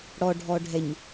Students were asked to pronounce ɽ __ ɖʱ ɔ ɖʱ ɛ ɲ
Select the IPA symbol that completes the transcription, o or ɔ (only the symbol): ɔ